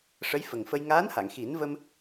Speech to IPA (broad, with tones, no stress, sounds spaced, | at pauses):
ʂ ə˧˥ j f ə˨˩ ŋ f ə˧ j ŋ aː˧˥ n h a˨˩˨ ŋ x i˨˩˦ n v ə˧ m